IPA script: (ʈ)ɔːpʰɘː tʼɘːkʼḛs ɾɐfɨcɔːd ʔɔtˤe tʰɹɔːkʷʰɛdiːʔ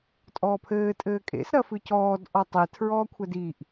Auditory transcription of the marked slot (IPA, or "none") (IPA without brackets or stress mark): tʼ